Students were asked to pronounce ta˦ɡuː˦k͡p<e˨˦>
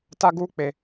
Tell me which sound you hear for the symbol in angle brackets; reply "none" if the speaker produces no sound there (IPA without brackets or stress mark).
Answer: e˨˦